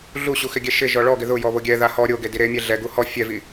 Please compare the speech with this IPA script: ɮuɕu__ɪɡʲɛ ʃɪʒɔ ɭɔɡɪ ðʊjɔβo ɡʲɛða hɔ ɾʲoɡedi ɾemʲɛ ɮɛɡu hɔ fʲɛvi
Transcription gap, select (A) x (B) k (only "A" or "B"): A